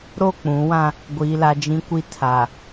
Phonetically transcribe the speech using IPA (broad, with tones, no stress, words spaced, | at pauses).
ɾo˦˨k͡pũ˨˦wã˦ | ɡʷiː˨la˨ d͡ʒĩ˨kʷi˨ tʰa˨